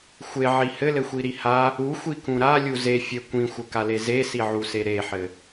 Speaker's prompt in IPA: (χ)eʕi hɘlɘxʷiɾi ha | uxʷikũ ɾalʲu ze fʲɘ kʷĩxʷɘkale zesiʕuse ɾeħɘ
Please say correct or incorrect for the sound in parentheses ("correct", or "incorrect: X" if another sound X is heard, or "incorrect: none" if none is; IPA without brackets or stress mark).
incorrect: xʷ